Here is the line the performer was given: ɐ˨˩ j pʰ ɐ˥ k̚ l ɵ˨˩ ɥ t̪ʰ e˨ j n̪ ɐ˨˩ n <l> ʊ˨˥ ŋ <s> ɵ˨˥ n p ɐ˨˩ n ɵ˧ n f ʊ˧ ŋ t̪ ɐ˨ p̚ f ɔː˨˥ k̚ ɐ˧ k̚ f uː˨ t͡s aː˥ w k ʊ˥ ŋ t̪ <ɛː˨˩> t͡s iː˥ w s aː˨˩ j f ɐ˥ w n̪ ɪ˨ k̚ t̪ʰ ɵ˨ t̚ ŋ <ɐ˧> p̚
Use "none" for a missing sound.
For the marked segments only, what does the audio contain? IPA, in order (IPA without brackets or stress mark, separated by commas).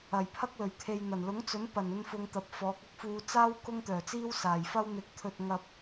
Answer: l, t͡s, œː˨˩, ɐ˨